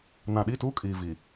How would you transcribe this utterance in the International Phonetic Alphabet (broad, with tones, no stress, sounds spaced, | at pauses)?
n ã˨ ɗ i˦˨ t uː˦ kʼ iː˨ v i˨